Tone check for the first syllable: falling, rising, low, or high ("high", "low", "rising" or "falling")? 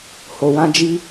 low